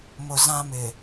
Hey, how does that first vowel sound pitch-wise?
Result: low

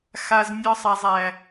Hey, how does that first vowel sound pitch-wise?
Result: low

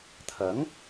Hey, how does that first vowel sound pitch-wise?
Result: rising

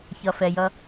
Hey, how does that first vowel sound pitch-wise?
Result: low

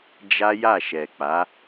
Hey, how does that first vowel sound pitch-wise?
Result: high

